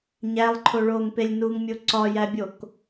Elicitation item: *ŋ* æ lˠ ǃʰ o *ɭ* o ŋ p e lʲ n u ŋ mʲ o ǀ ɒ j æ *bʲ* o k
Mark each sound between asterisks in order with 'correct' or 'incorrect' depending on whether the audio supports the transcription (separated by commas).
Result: incorrect, correct, correct